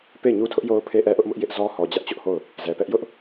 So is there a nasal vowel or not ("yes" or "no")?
no